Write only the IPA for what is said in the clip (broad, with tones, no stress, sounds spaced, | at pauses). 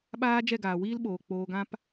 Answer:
ɓ aː˦ d͡ʒ ɛ˦˨ ɡ aː˨ w iː˦ l ɓ oː˨ k͡p oː˧ ɡ ã˦ p